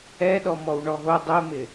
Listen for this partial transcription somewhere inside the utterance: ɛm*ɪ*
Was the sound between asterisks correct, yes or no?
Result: yes